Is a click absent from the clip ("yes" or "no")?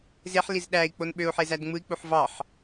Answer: yes